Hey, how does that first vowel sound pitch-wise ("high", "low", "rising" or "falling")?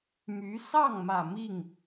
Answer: rising